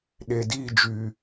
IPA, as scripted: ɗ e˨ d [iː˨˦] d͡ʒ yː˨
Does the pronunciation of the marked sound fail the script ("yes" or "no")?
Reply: yes